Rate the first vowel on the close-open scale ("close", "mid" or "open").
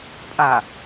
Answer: open